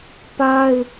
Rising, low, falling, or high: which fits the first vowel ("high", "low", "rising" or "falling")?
high